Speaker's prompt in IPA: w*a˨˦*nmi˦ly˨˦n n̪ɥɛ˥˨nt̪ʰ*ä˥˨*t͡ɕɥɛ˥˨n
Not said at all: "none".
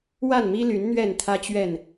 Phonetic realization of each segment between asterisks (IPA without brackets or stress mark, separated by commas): a˥˨, ä˦